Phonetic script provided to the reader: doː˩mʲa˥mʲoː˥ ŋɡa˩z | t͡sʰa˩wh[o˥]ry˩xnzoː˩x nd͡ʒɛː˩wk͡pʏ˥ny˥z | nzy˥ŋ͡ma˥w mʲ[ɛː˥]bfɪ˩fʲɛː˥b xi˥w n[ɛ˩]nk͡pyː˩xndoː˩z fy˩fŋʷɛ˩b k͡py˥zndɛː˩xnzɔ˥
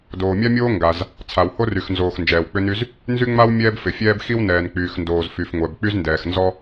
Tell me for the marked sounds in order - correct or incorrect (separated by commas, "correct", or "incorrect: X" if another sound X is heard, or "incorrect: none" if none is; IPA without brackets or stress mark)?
correct, correct, incorrect: ɛː˩